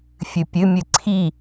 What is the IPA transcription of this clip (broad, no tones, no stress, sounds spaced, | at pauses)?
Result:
fʲ ɨ pʲ ɨ mʲ ɨ ǀʰ i